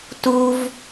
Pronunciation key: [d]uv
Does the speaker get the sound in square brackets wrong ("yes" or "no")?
yes